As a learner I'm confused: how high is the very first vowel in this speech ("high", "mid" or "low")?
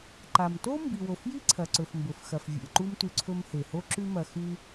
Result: low